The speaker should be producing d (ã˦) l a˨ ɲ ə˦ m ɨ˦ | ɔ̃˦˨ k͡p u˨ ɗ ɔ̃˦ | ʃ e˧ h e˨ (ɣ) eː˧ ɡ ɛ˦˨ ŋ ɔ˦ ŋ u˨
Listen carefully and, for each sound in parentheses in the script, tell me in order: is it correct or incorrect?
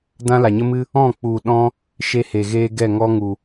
correct, correct

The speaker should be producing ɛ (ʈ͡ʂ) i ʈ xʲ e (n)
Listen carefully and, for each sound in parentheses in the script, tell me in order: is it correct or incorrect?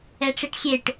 correct, incorrect: ʈ

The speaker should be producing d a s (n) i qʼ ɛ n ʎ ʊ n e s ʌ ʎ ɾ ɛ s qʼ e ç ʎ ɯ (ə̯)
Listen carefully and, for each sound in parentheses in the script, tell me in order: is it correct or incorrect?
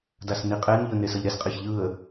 correct, correct

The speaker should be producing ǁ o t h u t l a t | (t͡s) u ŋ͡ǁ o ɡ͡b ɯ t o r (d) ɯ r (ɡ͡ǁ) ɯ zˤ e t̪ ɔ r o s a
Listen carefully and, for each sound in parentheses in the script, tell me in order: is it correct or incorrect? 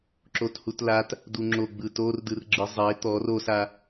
incorrect: d, correct, correct

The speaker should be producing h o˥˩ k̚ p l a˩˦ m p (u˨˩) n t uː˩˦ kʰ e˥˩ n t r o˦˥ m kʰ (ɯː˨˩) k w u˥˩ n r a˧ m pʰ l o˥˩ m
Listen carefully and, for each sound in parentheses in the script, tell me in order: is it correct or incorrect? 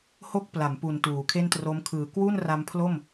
correct, correct

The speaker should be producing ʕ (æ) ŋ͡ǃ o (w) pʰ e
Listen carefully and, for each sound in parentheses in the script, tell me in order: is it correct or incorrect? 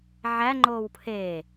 correct, correct

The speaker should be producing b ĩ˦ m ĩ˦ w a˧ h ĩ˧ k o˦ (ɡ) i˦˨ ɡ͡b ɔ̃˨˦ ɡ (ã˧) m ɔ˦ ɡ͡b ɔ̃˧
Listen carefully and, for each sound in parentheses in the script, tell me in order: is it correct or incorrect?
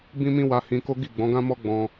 correct, incorrect: ã˦

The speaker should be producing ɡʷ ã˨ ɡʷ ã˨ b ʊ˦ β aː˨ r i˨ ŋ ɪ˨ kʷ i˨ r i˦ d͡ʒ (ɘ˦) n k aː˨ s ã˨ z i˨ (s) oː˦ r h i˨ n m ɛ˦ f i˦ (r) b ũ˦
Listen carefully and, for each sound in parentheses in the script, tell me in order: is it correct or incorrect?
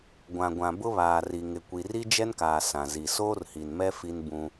incorrect: ɛ˦, correct, incorrect: n

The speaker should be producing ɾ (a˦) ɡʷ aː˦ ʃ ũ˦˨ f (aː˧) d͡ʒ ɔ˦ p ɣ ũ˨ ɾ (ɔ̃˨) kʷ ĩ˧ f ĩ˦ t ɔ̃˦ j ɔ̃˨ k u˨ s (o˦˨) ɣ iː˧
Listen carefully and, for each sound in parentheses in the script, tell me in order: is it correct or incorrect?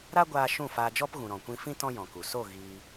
correct, correct, correct, correct

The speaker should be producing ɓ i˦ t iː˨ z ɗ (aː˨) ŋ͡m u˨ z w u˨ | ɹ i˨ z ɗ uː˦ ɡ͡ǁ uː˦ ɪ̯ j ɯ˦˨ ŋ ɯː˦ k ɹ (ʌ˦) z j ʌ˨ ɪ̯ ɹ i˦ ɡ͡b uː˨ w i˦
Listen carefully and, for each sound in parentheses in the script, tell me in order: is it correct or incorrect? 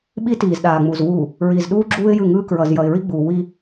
correct, incorrect: ʌ˨

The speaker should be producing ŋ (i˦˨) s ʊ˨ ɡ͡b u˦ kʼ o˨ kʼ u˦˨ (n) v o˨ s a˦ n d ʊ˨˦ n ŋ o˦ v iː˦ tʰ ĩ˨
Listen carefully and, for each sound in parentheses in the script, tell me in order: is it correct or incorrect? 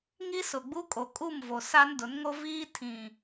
incorrect: i˦, incorrect: m

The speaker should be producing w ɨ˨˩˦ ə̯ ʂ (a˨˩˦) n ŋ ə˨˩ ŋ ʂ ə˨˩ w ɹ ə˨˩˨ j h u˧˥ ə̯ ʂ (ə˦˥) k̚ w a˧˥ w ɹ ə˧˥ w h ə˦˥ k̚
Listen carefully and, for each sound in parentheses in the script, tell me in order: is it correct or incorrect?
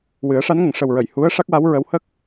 incorrect: a˧˥, incorrect: a˦˥

